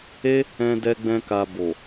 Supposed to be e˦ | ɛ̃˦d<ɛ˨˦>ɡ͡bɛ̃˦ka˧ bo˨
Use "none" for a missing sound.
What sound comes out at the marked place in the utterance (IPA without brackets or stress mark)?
ɛ˦